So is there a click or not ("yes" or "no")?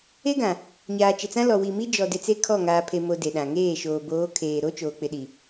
no